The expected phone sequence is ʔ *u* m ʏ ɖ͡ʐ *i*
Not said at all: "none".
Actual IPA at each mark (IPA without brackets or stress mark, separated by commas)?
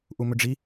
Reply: u, i